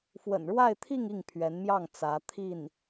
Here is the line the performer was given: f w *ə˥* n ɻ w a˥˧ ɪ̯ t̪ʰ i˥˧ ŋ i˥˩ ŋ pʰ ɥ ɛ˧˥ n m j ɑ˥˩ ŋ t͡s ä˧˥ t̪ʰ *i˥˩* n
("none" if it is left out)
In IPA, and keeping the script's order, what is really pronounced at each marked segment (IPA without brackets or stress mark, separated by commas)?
ə̰˨˩, i˥˩